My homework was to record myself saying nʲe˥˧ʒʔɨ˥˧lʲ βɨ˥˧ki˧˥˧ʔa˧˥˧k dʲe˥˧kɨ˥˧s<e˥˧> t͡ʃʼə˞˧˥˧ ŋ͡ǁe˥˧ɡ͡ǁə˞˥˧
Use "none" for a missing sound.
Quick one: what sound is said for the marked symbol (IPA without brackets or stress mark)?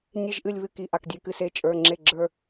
e˥˧